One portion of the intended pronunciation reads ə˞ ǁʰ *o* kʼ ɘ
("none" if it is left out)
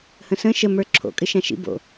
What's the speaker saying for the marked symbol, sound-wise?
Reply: o̰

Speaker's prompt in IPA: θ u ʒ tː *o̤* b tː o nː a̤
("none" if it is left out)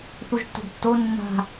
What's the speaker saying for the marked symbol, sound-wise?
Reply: o̤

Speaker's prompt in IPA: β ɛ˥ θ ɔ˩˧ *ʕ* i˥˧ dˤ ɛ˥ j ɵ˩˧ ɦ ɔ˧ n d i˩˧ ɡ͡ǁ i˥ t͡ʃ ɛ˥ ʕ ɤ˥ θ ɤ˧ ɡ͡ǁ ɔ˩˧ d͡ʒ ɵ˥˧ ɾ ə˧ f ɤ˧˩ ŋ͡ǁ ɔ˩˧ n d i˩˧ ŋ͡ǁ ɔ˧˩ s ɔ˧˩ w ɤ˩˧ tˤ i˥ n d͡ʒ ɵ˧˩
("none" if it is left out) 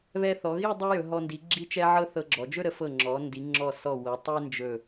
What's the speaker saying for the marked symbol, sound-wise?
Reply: ɣ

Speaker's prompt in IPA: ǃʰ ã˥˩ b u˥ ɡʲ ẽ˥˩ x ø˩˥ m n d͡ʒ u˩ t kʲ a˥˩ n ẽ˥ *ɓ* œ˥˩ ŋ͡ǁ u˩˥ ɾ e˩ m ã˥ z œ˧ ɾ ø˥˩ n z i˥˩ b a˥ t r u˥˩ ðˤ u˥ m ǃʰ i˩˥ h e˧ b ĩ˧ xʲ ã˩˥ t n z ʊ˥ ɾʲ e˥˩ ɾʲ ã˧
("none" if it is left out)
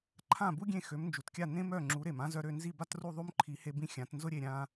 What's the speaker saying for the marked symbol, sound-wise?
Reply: m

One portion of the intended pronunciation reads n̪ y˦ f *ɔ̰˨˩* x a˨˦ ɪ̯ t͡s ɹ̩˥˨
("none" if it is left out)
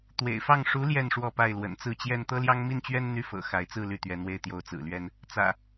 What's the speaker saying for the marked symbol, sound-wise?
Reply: ɤ̰˨˩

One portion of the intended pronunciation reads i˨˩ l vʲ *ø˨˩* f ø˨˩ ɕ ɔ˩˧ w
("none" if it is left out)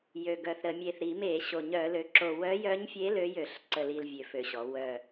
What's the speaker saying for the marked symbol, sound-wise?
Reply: ø˨˩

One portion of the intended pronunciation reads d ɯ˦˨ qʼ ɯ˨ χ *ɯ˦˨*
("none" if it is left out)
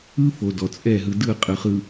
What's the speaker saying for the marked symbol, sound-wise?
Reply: ɯ˨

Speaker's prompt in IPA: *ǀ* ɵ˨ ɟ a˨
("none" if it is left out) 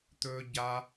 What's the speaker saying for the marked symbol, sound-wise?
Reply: t̪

